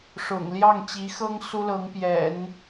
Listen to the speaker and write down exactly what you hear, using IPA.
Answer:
ʂ ʊ̰˨˩ ŋ l j ɑ˥˩ ŋ t͡ɕ i˧˥ x ɤ˥ ŋ s u˥ l ɤ˧˥ ŋ p j ɛ̰˨˩˦ n

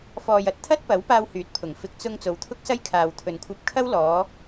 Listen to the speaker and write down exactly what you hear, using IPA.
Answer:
f ɔː˨ j ɐ˨˥ t̚ t̪ʰ ɐ˥ t̚ p ɐ˨˥ w p aː˧ w h yː˨˥ t̚ pʰ ʊ˨˩ ŋ f ɪ˨ k̚ t͡s ʊ˧ ŋ t͡s o˨˧ w t̪ʰ ʊ˥ k̚ s ɐ˥ j kʰ aː˨ w t̪ʰ ɵ˨ n kʷʰ ɐ˧ p̚ kʰ ɐ˥ w l ɔː˨˧

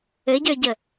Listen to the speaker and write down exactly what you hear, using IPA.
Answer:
ɘ ɟ ə˞ ɟ ə

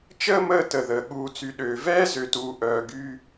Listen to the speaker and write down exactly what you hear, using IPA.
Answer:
t͡ʃ əː˦ m əː˦ t ə˨ ð əː˨ ɠ uː˨ t͡s y˨ ɗ øː˨ v ɛː˦ z ø˨ t uː˨ ʔ œː˨ ɡ yː˦

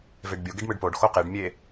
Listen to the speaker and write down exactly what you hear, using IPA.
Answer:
v e ɖ bʲ o ɡ e ɖ m ɯ ɖ p o ɖ x o q e ɖ mʲ e

